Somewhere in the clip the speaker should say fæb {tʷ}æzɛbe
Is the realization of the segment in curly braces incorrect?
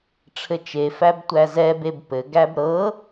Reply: no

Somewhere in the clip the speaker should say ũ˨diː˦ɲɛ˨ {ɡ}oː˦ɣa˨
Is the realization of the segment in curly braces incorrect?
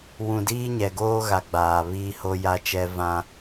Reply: no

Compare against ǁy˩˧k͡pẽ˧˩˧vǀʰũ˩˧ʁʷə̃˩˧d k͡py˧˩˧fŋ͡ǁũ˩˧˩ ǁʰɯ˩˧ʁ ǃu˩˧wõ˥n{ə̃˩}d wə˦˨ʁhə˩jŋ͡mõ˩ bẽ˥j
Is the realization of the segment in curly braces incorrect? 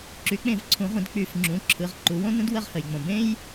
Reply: yes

